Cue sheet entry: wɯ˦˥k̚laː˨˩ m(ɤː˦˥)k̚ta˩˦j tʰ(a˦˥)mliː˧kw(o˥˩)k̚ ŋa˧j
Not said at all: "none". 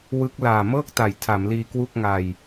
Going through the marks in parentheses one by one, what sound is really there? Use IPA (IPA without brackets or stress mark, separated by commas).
ɤː˥˩, a˩˦, u˥˩